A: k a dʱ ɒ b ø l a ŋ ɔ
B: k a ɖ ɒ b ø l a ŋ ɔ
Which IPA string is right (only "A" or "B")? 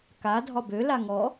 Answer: A